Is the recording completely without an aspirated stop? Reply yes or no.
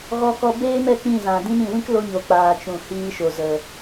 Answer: yes